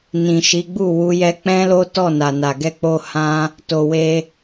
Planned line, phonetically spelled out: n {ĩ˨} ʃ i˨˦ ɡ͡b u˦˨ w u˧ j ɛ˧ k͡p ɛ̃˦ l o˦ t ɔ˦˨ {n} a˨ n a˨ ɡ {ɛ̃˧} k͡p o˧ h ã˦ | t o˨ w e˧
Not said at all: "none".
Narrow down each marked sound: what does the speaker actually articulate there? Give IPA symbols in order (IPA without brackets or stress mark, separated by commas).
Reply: ĩ˨, n, ɛ˧